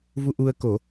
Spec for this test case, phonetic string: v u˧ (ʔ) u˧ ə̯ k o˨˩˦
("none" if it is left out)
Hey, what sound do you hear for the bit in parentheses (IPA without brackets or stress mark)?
ʔ